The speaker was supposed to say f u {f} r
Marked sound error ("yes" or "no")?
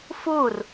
yes